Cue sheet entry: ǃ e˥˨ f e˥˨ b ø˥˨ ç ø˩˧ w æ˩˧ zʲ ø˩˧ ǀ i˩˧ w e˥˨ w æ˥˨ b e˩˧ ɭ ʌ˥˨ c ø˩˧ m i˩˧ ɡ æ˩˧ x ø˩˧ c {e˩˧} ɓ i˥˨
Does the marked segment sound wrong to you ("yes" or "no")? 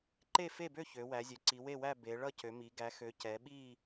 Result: yes